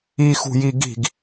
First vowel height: high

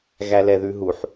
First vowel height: low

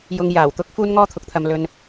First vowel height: high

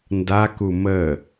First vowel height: low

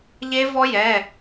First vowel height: mid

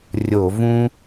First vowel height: mid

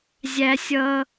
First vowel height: low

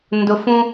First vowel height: high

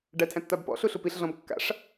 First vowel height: low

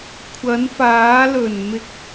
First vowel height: low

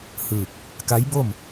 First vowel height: high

